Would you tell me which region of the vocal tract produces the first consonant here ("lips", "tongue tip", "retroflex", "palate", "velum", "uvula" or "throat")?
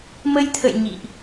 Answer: lips